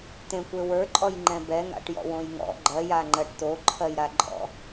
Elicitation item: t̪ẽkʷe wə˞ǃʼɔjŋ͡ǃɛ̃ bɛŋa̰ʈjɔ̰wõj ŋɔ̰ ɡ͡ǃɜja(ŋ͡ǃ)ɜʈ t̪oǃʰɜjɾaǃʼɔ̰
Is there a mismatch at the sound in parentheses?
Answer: no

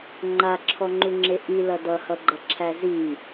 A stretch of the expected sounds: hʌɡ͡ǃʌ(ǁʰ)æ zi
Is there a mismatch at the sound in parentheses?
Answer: no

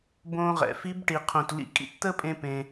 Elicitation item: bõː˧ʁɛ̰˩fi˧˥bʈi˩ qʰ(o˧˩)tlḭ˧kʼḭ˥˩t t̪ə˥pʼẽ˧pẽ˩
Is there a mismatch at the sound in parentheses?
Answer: yes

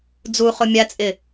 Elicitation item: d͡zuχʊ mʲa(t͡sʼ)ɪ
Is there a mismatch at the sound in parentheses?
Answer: no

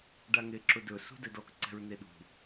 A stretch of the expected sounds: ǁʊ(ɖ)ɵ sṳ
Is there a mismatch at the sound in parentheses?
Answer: yes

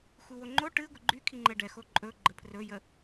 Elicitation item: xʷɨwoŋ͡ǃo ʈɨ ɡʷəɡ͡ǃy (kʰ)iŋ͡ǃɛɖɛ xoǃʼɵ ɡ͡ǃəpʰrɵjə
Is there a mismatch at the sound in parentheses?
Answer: no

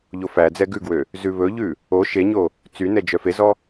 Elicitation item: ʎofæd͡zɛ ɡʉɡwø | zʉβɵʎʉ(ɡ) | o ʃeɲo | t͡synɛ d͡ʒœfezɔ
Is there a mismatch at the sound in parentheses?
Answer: yes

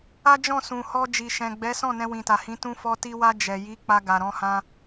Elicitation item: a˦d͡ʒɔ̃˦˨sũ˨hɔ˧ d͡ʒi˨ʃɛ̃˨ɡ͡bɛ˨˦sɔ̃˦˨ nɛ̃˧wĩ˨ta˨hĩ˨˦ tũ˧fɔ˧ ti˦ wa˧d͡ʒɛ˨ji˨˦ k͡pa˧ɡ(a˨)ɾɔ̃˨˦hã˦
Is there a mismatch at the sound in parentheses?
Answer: no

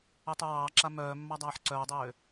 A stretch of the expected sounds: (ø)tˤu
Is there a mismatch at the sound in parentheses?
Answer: yes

